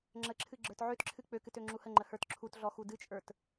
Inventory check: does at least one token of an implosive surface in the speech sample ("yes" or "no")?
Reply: no